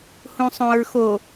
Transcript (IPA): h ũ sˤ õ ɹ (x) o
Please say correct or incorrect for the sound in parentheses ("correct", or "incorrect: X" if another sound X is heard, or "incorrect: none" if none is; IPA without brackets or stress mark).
correct